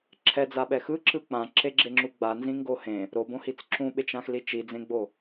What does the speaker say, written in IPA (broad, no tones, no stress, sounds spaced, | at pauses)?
ǁʰ ɛ d͡z a ɓ ɛ x ɯ ǁ ɯ k͡p ã ǁ e ɡ͡ǁ e ŋ͡ǁ u ɡ͡b a n z ĩ ŋ ɡ o h ẽ | ɾ o b õ h i t͡s ǁ ũ ɓ e t͡ʃ ã x l i t͡ʃ i d͡z ẽ ɡ͡b o